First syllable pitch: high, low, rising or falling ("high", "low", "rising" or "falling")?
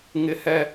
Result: high